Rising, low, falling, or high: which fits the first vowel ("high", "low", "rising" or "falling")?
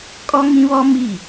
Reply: high